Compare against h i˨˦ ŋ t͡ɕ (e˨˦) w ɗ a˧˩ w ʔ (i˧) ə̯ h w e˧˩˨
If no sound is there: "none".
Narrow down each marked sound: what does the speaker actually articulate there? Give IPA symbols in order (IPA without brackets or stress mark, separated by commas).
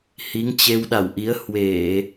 e˧, i˨˦